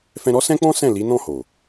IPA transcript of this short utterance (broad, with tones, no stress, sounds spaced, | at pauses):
f ɛ̃˧ ɾ ɔ˦ s ɛ̃˦ k͡p ɔ̃˦ s ɛ̃˦˨ l i˨˦ n ɔ̃˦˨ h o˨